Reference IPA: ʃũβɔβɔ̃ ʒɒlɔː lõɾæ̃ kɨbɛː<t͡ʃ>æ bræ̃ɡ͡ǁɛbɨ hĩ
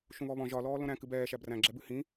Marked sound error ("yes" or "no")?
yes